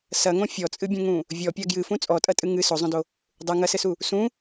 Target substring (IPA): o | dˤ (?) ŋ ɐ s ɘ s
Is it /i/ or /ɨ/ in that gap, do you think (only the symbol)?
ɨ